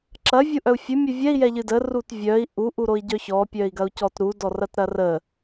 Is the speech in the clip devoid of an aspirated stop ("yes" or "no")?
yes